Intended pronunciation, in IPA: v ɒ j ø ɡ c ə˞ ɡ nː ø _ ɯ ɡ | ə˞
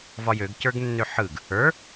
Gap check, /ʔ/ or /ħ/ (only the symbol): ħ